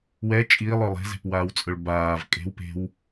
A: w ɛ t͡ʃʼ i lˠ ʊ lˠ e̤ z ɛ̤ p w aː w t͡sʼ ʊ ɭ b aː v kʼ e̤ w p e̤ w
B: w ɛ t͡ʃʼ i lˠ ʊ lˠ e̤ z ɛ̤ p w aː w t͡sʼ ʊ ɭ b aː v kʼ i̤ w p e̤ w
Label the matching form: A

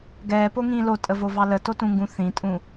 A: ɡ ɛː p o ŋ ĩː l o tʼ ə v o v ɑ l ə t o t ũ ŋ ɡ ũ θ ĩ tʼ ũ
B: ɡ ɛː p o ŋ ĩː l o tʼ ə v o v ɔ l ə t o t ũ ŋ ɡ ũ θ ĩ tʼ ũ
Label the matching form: A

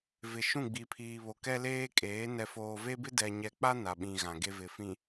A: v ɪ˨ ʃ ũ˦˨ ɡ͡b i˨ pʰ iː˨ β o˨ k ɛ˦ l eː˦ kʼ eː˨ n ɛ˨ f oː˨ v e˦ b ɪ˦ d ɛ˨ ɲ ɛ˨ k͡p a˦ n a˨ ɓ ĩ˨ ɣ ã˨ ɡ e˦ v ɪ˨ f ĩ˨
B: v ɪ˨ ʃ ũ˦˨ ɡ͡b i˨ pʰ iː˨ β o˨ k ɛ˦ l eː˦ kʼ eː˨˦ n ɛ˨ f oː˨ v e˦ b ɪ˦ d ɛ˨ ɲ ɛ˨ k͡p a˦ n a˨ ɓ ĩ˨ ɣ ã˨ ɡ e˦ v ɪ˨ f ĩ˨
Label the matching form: B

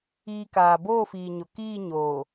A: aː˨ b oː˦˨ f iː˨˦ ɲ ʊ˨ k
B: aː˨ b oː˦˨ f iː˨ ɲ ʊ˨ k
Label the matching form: B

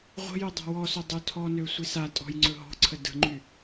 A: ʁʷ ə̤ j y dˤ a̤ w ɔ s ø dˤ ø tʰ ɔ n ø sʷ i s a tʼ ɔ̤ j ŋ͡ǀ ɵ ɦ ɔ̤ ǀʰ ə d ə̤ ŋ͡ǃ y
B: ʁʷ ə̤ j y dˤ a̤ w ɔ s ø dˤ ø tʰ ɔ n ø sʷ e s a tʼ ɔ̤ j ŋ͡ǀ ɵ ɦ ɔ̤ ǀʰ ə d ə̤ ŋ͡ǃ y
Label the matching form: A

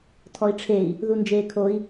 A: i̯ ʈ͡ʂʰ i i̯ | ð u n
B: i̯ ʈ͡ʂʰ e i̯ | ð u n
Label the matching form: B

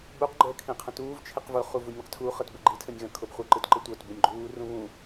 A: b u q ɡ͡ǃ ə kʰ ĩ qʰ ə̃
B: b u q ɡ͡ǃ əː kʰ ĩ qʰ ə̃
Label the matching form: B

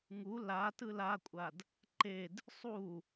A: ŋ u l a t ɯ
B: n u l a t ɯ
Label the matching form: A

